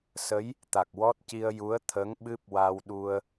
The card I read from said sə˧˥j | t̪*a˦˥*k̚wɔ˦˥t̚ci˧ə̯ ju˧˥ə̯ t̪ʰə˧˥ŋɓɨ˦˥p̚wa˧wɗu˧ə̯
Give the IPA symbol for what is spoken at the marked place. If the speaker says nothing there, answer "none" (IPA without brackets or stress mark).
a˨˩